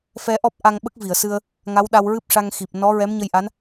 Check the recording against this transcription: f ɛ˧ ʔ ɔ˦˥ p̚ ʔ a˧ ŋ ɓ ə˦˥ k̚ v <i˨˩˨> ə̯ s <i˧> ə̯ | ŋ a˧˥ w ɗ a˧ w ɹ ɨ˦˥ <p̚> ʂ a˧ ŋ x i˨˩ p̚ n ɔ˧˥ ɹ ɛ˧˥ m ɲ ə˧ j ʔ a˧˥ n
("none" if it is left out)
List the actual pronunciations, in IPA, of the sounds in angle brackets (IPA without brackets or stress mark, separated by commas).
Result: i˨˩˨, ɨ˧, p̚